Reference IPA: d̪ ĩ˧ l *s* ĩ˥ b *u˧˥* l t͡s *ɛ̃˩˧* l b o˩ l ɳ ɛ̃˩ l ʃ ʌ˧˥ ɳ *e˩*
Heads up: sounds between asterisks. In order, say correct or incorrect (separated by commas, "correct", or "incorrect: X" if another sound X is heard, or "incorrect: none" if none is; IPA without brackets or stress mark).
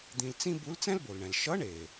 incorrect: t͡s, correct, incorrect: ɛ̃˥, correct